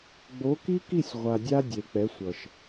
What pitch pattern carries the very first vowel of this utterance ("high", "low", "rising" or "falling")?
rising